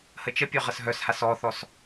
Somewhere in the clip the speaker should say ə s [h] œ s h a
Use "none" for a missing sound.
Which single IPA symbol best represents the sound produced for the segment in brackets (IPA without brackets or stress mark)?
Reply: ɦ